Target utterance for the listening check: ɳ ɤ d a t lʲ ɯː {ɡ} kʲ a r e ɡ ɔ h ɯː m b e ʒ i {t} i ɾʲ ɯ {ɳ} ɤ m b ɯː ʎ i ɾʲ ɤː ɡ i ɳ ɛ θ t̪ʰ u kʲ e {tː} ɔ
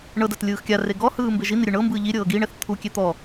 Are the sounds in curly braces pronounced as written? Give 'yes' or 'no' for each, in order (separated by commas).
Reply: no, no, yes, no